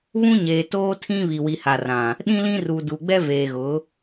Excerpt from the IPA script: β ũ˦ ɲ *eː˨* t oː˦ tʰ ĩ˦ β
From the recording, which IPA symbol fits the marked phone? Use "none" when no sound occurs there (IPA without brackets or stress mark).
eː˨